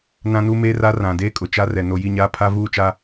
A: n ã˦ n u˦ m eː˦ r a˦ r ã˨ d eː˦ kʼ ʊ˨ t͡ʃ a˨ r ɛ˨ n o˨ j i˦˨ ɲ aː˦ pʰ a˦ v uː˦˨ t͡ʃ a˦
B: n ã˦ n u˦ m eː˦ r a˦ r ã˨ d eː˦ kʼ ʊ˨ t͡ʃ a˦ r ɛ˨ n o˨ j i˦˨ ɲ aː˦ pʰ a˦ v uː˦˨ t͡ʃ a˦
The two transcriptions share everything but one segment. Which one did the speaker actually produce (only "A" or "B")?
B